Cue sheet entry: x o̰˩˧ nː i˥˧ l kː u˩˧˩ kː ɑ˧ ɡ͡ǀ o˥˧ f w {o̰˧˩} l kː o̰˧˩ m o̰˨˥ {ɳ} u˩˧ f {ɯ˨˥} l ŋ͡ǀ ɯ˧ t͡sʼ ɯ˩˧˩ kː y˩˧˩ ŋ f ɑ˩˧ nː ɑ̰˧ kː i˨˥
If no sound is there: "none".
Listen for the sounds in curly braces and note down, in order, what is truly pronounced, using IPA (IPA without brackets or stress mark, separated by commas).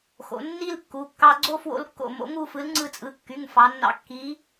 o̰˧, ŋ, ɯ˨˥